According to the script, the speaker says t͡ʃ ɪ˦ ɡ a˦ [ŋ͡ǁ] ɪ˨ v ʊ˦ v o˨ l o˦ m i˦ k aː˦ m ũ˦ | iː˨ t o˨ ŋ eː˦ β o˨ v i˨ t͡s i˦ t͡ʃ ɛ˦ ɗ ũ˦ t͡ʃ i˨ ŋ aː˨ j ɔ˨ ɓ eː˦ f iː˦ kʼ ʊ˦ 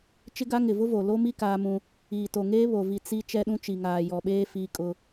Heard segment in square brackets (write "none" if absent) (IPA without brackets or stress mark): ŋ